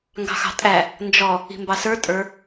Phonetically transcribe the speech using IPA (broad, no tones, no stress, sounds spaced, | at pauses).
ŋ ɡ ɑ̤ x ɑ̤ tʼ æ | n d͡ʒ ɔ | i̤ m b ɑ s ə˞ tʼ ə˞